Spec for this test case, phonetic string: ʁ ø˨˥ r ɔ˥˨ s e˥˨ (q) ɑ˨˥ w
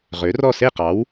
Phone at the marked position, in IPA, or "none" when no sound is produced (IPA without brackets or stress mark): q